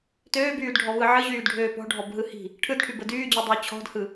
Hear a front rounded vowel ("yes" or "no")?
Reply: yes